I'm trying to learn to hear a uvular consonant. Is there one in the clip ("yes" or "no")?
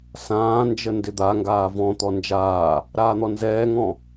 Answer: no